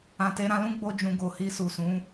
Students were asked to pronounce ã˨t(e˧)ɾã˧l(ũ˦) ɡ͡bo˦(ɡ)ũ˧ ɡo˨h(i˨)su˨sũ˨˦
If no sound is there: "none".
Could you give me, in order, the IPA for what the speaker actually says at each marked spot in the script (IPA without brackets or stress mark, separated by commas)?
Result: e˧, ũ˦, d͡ʒ, i˧